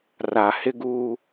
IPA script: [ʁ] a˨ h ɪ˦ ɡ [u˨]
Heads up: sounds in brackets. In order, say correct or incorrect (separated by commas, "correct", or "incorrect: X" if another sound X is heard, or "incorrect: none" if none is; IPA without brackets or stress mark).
incorrect: r, incorrect: u˦